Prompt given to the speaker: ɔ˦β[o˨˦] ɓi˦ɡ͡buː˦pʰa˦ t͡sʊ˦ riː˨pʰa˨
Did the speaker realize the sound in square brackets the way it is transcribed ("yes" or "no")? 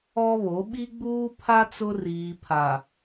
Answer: yes